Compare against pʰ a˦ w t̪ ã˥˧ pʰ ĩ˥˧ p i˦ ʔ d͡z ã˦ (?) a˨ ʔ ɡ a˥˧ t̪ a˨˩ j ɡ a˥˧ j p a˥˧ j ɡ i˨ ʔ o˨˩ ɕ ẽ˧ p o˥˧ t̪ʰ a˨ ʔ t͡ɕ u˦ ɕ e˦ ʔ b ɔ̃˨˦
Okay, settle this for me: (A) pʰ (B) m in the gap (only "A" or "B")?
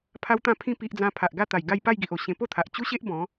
A